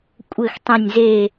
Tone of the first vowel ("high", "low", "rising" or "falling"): falling